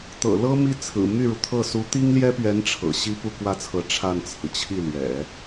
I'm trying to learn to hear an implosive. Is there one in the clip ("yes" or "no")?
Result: no